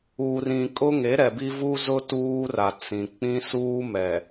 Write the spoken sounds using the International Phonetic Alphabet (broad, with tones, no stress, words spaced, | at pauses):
uː˨rĩ˨ kʼʊ˦ŋe˨˦ɾɛ˨ bi˦vuː˦zʊ˦ tuː˦ra˨ t͡sĩ˨k͡pĩ˦suː˦mɛ˨